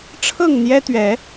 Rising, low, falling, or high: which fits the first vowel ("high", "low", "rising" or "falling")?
falling